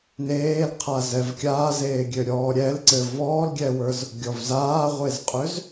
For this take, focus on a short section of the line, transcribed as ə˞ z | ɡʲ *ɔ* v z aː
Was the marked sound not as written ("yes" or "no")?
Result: no